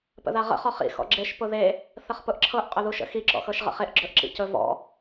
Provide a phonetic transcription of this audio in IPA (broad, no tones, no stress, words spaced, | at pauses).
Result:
pə̰ðaʁə̰ χɔχḭ xɔ̰ɡ͡ǁeʃ pʊðe | θəχpʊʔǁʰɤʔ qʼɵðuʃə̰ xi ǁɔ̰xɤʃʁə̰χeʔ ɡ͡ǁɵʔǁḭcɵ vɔ̰